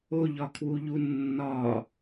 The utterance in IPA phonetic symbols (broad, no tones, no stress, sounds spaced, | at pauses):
o ʎ ɒ kʰ w u ʎ u nː ɒ